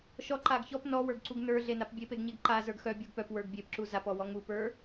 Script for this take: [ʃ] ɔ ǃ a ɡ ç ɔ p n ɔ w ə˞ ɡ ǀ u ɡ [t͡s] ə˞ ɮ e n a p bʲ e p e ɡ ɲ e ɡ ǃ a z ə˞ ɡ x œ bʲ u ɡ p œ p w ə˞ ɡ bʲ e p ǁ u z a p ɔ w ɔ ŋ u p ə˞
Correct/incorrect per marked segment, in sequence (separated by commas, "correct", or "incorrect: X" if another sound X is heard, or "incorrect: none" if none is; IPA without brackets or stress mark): correct, incorrect: n